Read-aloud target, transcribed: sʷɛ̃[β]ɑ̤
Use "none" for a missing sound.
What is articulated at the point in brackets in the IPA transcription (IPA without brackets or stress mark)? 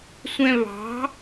β